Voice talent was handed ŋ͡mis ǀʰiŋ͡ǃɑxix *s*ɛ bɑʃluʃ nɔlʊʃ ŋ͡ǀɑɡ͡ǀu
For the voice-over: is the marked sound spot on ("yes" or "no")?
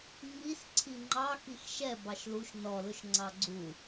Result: no